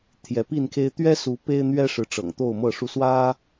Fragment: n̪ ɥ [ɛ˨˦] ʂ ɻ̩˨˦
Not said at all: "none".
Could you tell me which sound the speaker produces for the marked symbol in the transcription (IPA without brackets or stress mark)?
ɛ˦